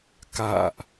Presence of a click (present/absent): absent